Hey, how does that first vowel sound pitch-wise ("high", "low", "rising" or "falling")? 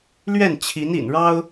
falling